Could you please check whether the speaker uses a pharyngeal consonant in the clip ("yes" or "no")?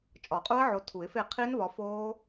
yes